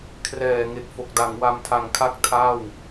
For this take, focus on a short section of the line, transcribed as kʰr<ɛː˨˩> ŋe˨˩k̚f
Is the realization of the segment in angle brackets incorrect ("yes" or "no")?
no